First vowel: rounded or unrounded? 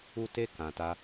rounded